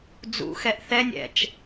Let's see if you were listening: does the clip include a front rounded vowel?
no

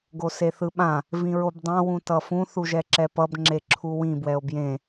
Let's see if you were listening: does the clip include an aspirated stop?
yes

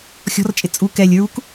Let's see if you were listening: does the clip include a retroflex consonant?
no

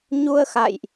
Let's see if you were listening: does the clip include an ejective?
no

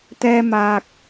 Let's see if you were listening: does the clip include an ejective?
no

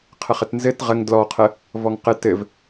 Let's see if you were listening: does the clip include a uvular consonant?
yes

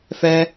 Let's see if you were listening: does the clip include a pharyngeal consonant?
no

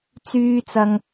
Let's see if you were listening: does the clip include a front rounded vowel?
yes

